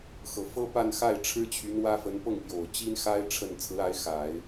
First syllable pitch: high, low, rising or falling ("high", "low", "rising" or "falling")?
low